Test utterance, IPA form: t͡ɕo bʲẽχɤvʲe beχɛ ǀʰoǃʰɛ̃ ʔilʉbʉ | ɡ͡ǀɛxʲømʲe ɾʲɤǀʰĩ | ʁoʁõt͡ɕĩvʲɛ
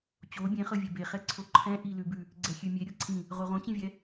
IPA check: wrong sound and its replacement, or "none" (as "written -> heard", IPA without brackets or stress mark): none